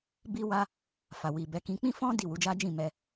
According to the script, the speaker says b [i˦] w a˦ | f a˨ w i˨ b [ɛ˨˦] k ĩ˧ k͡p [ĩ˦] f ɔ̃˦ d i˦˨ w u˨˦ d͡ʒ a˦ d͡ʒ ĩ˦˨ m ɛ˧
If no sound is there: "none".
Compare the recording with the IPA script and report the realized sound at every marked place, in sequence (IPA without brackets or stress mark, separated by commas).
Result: i˦, ɛ˨˦, ĩ˦